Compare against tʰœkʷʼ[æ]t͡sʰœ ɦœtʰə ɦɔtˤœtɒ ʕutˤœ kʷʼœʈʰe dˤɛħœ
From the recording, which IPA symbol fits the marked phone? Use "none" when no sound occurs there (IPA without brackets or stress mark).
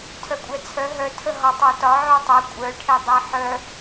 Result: ɛ